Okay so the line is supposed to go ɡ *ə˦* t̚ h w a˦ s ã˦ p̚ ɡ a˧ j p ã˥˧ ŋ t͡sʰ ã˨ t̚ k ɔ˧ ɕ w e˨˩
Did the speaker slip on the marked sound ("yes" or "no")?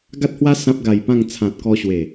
yes